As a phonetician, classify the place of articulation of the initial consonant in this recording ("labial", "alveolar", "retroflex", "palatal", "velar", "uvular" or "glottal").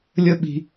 alveolar